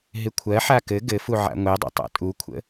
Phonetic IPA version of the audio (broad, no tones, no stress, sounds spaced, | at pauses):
ɦ ɪ kʷʰ ɜ ħ a k ɘ ɡ ɘ f u ʕ a̰ ŋʷ ɛ dˤ ṵ tˤ a̰ tʼ u kʷʰ ə̰